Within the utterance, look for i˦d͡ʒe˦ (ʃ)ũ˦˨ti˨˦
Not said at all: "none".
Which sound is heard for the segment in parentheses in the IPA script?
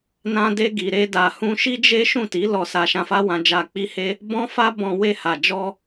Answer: ʃ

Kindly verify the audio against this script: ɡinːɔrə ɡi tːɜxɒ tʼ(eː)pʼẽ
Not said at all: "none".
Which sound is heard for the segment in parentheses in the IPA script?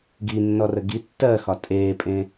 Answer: eː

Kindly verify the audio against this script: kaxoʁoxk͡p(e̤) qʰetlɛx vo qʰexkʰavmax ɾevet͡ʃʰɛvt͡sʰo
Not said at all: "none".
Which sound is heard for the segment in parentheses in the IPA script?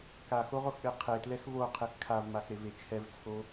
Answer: e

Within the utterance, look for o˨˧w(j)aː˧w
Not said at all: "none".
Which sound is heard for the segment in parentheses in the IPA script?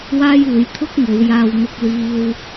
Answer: j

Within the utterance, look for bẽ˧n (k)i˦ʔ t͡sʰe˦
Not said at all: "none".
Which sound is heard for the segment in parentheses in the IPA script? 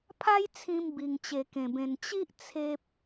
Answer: t͡ɕ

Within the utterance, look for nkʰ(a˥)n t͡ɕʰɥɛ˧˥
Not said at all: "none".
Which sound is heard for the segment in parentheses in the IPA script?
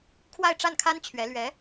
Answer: a˥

